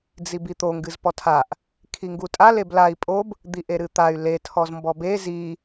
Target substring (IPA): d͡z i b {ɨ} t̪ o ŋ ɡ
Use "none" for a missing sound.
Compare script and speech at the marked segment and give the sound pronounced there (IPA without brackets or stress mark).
i